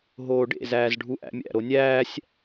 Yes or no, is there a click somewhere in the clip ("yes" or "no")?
no